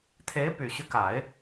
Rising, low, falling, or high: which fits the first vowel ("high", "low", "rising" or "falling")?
rising